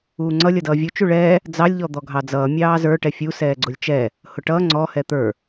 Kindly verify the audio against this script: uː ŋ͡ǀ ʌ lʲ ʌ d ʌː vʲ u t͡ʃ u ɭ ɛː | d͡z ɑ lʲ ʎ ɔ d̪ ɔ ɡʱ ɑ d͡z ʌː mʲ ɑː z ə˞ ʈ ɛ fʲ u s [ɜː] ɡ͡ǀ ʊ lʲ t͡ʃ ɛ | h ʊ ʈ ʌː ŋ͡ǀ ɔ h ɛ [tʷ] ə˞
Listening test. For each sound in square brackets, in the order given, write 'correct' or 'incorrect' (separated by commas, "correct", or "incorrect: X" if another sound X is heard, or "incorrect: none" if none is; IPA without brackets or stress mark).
incorrect: ɛː, incorrect: t̪